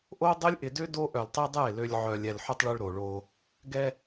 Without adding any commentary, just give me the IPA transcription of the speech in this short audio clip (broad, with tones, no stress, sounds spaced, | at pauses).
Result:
ʔ o˦ dˤ ɪ˦ lʲ ʔ ɪ˨ d ø˦ d o˦ ʔ œ˨ l tˤ i˦ dˤ ɛ˦˨ e̯ l ø˦ lʲ ʕ œ˨ lʲ ɛ˨ l ħ ø˦ tˤ ɭ ø˦ ɭ ɾ o˨ ɭ o˦ | ɡ ɛ˦